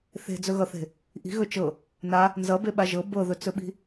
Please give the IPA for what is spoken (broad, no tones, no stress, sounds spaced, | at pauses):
θ e̤ d͡z ɵ ɣ ʌ θ e̤ | ʔ i̤ ɣ ɵ t͡ʃ ɤ | n a | n z ʌ b e ɓ a ʒ ɤ b ɤ ð ɵ t͡s ɵ ɓ i̤